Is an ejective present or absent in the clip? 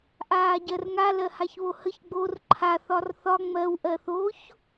absent